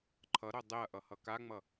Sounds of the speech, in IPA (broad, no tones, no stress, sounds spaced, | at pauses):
ǃʰ ʌ ɾ o dˤ e ɐ̯ ʔ ʌ h ʌ k a ŋ͡m ʌ